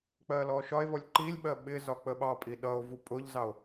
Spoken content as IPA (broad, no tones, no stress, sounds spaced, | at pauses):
k͡p ɜ l ɔ ʃ ɒ e̯ v ɔ lʲ ǃ i lʲ ɓ ɜ ɓ ɪ z ɒ k͡p ə ɓ ɑ pʼ i ɗ ʌ o̯ v u pʼ ʊ ʎ z ɑ o̯